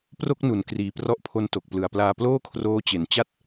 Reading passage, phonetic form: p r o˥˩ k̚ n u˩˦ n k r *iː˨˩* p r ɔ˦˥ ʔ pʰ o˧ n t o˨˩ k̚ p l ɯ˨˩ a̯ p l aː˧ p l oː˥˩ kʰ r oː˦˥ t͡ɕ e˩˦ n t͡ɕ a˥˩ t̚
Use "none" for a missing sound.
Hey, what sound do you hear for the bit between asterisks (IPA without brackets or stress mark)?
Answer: iː˨˩